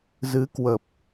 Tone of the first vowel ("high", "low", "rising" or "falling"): rising